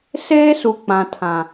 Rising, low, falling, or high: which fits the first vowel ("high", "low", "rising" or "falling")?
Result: high